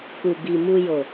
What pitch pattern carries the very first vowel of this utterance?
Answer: low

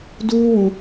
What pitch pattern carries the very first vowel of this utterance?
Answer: high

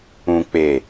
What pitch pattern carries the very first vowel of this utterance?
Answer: low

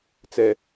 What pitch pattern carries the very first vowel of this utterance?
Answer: low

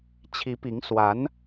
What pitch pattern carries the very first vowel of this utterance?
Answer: rising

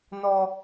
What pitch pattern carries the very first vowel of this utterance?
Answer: high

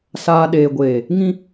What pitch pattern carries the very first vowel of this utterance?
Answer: low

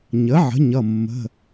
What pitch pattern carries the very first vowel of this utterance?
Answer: rising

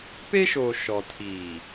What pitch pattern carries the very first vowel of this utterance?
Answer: high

